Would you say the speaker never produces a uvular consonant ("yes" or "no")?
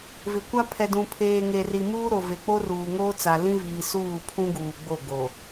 yes